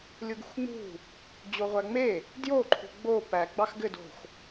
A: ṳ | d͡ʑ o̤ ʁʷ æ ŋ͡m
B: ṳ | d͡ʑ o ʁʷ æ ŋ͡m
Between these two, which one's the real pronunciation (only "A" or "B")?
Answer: B